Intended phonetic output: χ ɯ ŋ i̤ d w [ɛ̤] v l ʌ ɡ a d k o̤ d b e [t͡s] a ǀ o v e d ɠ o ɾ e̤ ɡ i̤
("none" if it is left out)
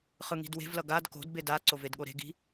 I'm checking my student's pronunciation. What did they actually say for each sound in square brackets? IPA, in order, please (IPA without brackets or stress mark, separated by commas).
e̤, d